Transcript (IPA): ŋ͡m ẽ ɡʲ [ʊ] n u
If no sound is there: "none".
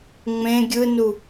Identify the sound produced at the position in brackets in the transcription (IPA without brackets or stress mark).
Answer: ɯ